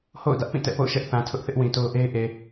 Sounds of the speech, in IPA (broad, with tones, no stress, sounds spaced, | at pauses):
h o̰˦˨ ʊ̯ d ä˦ ʔ p ĩ˦˨ t ɛ̰˦˨ p o̰˦˨ ʊ̯ ʃ ɛ˦ ʔ θ ã˨ tʰ ʊ˦ ʔ θ ɪ˦ ʔ w ĩ˨ t o˦ ʊ̯ ʔ e˦ ɪ̯ ʔ e˨